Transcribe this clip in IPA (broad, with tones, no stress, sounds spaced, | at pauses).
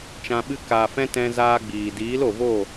t͡ʃ ã˧ ɓ ɨ˦ k aː˨ f ɛ̃˦ t ɛ̃˦ z aː˦ ɡ͡b iː˨ d iː˨˦ l o˨ v o˦˨